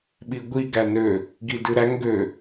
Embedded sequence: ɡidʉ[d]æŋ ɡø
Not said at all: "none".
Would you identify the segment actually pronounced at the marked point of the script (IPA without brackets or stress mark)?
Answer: ɾ